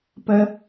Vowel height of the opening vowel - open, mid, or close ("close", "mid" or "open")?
mid